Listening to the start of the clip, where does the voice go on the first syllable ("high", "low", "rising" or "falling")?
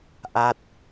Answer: falling